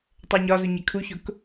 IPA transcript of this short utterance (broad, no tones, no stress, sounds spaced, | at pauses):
tˤ ɜ ɲ ɒ z u ɲ ɪ kʰ u ç ʊ k